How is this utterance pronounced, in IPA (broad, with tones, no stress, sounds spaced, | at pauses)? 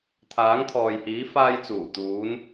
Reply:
t̪ʰ aː˨˥ ŋ t̪ʰ ɔː˨ j h iː˨˥ f aː˧ j t͡s uː˨˩ t̪ uː˨˧ n